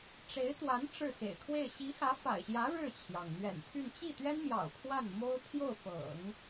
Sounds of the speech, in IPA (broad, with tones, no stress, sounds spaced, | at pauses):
ʈ͡ʂ e˧˥ ɪ̯ t̪ w a˧˥ n ʈ͡ʂ ɻ̩˥˩ x ḛ˨˩ ɪ̯ kʰ w e˥˩ ɪ̯ ɕ i˧˥ x ä˧˥ f a̰˨˩ ɪ̯ ɕ j ä˧˥ ɻ ɻ̩˥˩ t͡ɕʰ j ɑ˩ ŋ n̪ ɥ ɛ̰˨˩ n pʰ y˥˧ n t͡ɕ i˥˩ t̪ ɥ ɛ˥ n m j ɑ̰˨˩ ʊ̯ pʰ w a˥˩ n m o˥ ʊ̯ pʰ j o˥˩ ʊ̯ f ɤ̰˨˩˦ ŋ